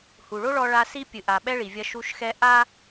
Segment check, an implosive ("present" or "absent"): present